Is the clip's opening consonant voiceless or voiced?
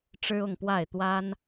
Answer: voiceless